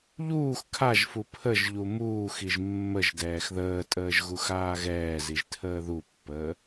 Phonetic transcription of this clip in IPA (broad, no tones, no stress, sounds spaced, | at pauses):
ʎ uː x kʰ a ʒ f u pʰ ə ʒ ʎ u m uː x i ʒ mː ə ʒ d ɛː x ð əː tʼ əː ʒ ɣ u x aː ɣ ɛː z i ʒ tʰ əː ð u pː əː